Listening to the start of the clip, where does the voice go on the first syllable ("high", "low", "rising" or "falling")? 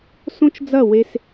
high